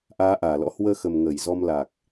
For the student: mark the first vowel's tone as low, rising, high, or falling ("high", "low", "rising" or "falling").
rising